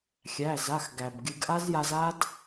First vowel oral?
yes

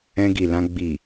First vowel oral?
no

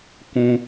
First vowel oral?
no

